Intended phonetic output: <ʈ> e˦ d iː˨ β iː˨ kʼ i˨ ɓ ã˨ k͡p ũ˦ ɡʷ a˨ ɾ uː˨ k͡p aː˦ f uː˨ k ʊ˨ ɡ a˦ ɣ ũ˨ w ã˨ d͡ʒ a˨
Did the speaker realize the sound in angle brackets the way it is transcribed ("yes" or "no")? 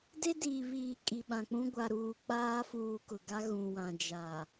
no